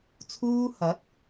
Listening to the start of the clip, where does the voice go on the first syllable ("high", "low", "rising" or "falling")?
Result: high